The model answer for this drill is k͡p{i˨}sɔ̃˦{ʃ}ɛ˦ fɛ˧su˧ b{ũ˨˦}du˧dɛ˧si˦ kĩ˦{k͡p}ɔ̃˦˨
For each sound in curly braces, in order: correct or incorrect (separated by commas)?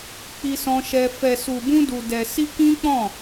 incorrect, correct, incorrect, correct